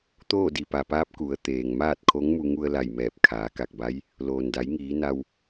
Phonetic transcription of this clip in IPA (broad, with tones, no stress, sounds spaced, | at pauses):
t̪ oː˥˨ d i˩ p a˩ p aː˧˥ p̚ k u˩˧ ə̯ t̪ eː˩ ŋ m aː˥˨ t̚ kʰ o˧˥ ŋ m u˧ ŋ u˧ ə̯ l a˧˩ j m ɛː˧˩ p̚ kʰ aː˩˧ k a˧˩ k̚ b a˧˥ j | l oː˩ n d a˩˧ j ŋ iː˩˧ n a˧ w